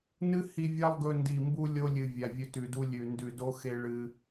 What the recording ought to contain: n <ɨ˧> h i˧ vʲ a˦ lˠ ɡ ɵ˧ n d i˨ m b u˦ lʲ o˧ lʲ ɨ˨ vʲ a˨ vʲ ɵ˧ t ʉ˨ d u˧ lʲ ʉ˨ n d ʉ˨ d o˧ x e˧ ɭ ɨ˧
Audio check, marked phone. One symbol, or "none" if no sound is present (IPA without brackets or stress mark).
ɨ˦